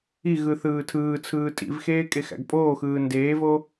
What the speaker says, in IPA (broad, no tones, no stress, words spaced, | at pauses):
iɣɯ θɯːtʰɯːt͡sʰɯː tʼḭvxeː kʼexæ̰ɡpʼoːxɯː ndeːvo